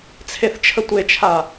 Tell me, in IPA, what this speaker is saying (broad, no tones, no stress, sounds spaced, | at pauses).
t͡sʰ e θ t͡ʃʰ ə tʷ e t͡ʃʰ a